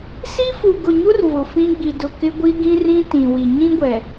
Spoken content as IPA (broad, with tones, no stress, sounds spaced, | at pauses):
s i˦ f u˨ ɡ ʊ˨ ɲ u˦ r v ʊ˨ f ĩ˦ ɡ͡b i˨ d ʊ˨ k ɪ˦ ɡʷ i˦ ɡ ĩ˦ r ĩ˦ t ĩ˨ w i˨ ɲ ĩ˦ ɡʷ ɛ˨